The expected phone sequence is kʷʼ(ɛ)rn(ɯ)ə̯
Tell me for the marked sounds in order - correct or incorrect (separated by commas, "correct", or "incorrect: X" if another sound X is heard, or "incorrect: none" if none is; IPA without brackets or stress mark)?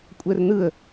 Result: correct, correct